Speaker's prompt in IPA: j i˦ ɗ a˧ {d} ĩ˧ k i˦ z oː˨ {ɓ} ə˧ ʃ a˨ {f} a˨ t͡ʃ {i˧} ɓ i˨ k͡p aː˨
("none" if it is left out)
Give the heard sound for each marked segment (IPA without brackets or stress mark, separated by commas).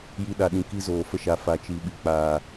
ɗ, f, f, i˨